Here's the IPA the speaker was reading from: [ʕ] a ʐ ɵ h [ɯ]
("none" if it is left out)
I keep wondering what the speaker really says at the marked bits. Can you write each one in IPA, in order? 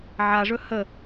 ʕ, ə

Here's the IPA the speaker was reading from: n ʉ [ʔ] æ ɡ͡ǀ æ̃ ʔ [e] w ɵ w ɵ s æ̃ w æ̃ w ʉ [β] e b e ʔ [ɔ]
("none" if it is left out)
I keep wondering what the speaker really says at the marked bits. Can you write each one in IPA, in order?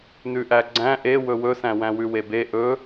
ʔ, e, w, ɵ

